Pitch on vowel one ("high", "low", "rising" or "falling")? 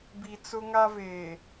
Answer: low